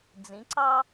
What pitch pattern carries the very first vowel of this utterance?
rising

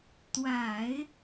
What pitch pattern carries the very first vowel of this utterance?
low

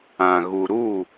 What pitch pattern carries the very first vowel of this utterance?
low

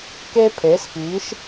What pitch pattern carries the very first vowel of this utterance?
high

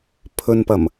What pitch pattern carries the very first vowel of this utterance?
low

